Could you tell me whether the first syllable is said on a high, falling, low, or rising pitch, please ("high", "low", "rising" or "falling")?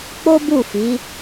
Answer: high